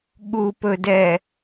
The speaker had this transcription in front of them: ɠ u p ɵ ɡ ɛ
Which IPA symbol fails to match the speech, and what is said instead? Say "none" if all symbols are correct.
ɡ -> d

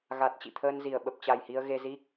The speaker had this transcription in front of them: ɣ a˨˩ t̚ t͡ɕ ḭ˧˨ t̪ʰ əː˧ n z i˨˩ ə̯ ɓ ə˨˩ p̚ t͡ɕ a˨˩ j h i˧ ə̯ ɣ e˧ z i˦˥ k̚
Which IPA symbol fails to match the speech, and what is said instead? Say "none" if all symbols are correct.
none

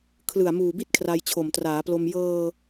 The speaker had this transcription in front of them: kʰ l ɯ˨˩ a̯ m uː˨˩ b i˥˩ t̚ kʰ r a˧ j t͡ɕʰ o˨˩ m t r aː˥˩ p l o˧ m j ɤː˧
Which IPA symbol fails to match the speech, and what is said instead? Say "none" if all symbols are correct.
aː˥˩ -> aː˩˦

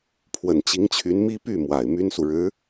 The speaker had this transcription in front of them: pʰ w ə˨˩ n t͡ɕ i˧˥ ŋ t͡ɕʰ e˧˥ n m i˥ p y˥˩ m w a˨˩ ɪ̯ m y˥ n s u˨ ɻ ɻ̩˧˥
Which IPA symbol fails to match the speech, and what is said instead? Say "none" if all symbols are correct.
e˧˥ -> y˧˥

